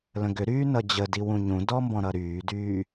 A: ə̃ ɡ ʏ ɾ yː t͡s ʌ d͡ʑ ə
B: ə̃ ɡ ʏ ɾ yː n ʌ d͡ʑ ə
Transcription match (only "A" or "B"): B